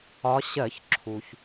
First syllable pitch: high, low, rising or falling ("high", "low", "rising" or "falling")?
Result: rising